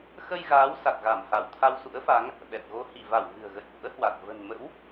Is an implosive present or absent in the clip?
present